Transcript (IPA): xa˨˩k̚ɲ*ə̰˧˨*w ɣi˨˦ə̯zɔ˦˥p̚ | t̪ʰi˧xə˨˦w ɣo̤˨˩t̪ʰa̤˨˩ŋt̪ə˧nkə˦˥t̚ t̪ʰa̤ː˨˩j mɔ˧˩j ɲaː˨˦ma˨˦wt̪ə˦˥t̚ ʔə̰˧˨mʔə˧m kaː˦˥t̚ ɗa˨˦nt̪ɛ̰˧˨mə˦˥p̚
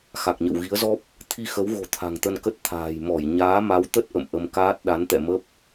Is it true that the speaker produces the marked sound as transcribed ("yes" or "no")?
yes